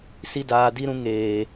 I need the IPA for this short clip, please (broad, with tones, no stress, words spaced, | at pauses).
si˦daː˧di˦ɾũ˦ ŋeː˨